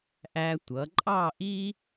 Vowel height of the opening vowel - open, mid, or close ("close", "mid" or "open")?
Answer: open